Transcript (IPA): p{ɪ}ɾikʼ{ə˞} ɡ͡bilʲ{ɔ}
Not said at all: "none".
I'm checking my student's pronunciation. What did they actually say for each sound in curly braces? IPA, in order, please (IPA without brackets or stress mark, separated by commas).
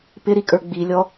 ɪ, ə˞, ɔ